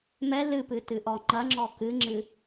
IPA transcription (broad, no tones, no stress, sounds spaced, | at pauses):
m ɛ l ɨ p ɨ t ɨ ʔ ɔ ŋ͡ǃ ɐ ŋ͡ǁ ɔ k ɨ ŋ͡ǁ ɨ